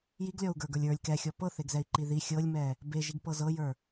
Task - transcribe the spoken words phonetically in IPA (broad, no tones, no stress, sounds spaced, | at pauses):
j i ɡ lʲ ɔ u̯ ɡ ə˞ ɡ ə˞ lʲ ə˞ lʲ k ɛ xʲ ɔ p ɤ θ e ɡ z ɛ i̯ ǃ i ð i xʲ ɤ lʲ m ɛ | b e ʒ i ɡ p ɤ z ɤ j ə˞